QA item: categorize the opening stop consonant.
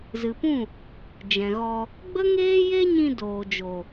plain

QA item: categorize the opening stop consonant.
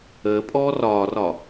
ejective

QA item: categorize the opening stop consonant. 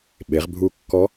implosive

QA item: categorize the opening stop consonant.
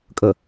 ejective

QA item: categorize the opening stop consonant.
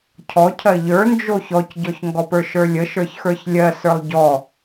aspirated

